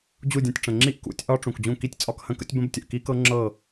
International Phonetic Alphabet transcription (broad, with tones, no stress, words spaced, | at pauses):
d͡ʑu˥˩dʲɐ̃˥˩tʲ ʈ͡ʂə̃˩ ŋ͡ǁi˦˥ʔkṵ˨˩˦tʲʔɒ˦˥ ʈ͡ʂũ˩kd͡ʑũ˥˩ki˥˩tʲ t͡sʼɒ˥˩khə̃˦˥kə̰˦˥tʲ bə̃˦˥btʲə˩ʔki˦˥kɤ˦˥ ŋ͡ǁɤ˥˩